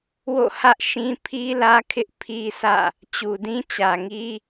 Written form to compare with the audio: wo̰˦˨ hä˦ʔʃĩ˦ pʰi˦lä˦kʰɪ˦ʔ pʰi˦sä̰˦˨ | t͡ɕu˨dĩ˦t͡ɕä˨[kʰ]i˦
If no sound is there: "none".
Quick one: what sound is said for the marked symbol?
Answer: ŋ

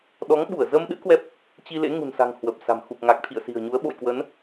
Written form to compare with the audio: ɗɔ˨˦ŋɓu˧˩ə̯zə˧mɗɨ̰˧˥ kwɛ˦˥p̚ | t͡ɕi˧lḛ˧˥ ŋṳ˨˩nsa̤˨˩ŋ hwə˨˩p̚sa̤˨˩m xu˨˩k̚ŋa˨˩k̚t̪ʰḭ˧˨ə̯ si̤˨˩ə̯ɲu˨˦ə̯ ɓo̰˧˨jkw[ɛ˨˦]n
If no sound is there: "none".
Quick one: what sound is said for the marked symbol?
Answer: ə˨˦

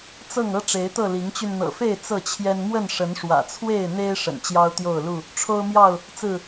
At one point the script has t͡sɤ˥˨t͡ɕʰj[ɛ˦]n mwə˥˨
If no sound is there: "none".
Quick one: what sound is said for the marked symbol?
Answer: ɛ˦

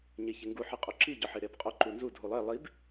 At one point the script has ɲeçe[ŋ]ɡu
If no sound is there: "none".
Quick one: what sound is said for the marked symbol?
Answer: ŋ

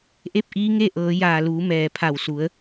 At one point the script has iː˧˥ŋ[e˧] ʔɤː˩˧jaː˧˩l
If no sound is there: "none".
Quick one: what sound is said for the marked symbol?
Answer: e˥˨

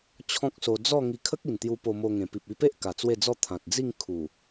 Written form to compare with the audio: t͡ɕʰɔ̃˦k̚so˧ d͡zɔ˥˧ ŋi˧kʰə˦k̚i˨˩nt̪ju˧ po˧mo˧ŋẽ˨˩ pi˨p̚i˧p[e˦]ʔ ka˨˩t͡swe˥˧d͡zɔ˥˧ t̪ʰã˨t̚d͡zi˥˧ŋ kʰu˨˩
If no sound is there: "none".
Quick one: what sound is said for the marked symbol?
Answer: e˦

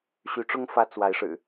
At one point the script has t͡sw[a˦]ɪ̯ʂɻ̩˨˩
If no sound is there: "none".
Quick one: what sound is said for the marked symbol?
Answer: a˨˦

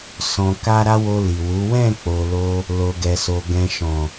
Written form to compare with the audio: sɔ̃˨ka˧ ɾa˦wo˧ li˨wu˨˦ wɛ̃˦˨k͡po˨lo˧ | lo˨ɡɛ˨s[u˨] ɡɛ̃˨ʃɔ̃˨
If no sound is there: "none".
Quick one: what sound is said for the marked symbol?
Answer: o˨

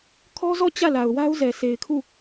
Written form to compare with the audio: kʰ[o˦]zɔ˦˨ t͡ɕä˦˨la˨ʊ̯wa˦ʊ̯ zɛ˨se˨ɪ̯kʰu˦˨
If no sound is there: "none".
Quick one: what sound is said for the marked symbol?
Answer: ɔ˦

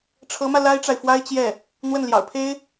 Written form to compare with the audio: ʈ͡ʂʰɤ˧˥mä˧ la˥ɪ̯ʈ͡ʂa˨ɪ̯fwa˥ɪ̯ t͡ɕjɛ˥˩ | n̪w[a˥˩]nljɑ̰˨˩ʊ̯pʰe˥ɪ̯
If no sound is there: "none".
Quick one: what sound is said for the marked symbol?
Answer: ə˥˩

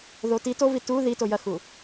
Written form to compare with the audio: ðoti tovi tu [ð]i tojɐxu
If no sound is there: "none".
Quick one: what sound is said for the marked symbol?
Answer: ð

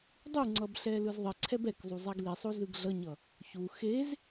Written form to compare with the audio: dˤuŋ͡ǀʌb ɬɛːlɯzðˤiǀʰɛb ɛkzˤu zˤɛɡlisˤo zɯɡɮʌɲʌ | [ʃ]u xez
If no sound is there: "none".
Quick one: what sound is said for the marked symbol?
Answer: ç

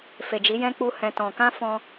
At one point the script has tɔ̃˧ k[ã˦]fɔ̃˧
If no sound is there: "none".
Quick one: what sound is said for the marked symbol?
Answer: ã˦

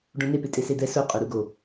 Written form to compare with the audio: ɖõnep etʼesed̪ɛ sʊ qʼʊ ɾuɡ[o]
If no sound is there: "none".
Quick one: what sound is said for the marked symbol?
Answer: o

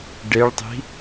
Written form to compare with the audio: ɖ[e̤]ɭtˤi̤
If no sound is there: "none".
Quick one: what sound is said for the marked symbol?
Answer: e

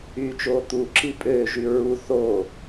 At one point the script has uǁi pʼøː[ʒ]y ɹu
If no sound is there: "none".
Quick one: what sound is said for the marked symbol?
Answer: ʒ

